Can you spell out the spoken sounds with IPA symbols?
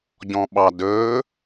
ɟ ɔ̃ ɓ ɑ d ɵː

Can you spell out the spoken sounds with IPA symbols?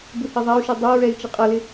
b u h i ðˤ æ u̯ ʃ i dˤ ɛ ɹ ɛ i̯ t͡ʃ ə qʼ ʌ l ɪ

